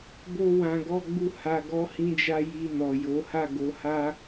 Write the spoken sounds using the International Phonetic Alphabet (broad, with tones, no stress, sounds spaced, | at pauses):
b o˧ w ã˨ ɡ ɔ˧ ɡ͡b u˧ h a˨ ɡ ɔ˨˦ h ĩ˧ d͡ʒ a˧ j i˧ n ɔ˨ j o˨˦ h a˦˨ ɡ o˨˦ h a˦